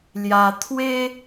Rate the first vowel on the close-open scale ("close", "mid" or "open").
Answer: open